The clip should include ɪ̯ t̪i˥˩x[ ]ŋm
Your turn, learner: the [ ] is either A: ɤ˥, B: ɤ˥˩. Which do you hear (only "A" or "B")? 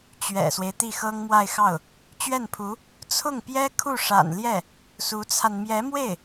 A